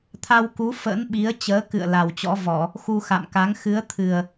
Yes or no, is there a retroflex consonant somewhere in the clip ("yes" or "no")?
no